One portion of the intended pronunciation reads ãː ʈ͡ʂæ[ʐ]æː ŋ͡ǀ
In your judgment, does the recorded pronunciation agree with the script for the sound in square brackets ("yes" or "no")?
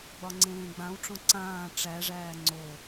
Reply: yes